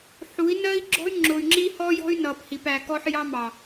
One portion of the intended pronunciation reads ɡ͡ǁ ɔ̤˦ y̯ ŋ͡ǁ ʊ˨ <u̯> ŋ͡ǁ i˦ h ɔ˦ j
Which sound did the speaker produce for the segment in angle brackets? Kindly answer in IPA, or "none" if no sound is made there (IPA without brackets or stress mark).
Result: y̯